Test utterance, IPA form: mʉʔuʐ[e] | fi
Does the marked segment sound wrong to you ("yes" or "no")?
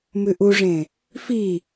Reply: yes